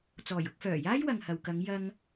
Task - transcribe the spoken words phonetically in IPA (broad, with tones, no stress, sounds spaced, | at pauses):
t͡s ɔː˨˩ j ʊ˧ k̚ f œː˨˩ j aː˥ j w ɐ˨ ŋ h ɐ˨ w k ɐ˨˧ ŋ j ɐ˧ ŋ